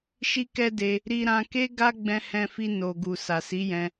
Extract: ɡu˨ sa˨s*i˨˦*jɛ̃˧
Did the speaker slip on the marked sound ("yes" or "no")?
no